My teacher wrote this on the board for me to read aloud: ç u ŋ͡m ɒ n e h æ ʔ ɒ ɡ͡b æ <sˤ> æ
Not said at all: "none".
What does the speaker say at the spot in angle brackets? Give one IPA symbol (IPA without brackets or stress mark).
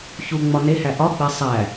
sˤ